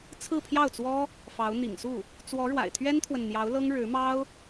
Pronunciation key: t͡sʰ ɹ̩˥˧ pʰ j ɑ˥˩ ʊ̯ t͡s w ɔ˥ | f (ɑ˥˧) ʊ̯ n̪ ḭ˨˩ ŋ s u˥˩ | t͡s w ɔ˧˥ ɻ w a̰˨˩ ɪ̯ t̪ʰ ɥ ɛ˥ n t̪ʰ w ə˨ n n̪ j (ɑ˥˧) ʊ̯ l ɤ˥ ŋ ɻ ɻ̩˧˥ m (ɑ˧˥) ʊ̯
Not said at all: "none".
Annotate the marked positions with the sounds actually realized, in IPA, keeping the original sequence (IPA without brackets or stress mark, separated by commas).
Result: ɑ˧˥, ɑ˧˥, ɑ˥